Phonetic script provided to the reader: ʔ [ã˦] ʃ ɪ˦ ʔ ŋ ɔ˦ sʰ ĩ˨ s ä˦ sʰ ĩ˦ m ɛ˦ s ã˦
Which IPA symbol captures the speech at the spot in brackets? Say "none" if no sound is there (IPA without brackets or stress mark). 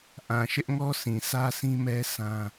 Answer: ã˨